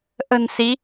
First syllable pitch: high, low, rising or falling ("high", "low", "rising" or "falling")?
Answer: low